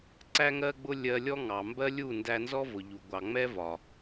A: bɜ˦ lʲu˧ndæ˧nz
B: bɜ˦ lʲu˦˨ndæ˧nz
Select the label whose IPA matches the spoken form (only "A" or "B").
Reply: B